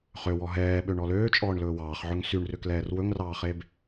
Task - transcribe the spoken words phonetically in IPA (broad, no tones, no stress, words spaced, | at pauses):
χøwɔ ɦɛːɓøɳɔ løːt͡ʃʼɔːɳlɵː wɑːχʕɵŋ syɳrøklɛːr wɵŋrɑːχeb